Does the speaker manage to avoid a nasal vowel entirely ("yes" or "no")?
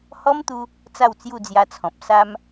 no